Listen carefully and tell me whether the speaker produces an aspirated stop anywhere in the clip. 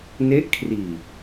yes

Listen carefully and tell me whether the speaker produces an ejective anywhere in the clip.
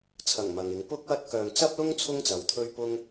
no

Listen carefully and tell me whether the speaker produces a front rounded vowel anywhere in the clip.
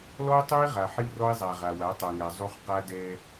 no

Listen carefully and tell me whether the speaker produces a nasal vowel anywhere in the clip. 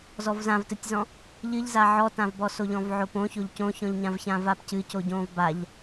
yes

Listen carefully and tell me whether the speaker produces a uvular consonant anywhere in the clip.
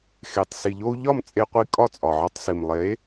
yes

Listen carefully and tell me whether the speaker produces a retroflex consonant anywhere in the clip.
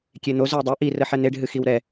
yes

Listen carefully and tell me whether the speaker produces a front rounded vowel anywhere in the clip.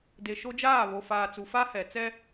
no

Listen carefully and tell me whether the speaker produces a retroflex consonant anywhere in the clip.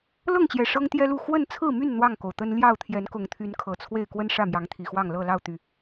yes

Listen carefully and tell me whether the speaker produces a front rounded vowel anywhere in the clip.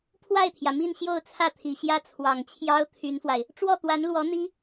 yes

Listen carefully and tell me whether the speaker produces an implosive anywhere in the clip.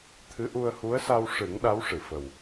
yes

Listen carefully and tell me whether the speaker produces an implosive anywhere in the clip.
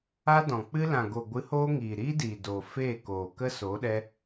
yes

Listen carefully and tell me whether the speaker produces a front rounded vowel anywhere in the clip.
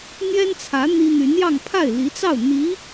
yes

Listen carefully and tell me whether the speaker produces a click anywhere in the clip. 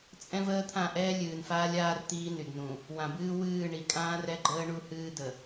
yes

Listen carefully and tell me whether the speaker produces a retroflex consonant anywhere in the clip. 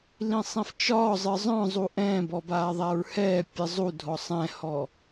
no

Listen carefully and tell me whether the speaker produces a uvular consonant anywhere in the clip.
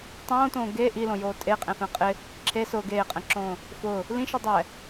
yes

